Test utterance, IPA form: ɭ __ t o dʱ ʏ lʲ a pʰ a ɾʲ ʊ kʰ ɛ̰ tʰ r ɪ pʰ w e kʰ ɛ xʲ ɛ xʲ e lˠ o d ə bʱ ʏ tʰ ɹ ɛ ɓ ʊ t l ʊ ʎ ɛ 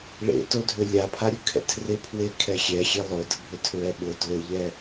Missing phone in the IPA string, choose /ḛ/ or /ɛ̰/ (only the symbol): ḛ